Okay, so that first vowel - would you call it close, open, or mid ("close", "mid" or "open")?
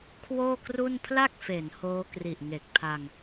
mid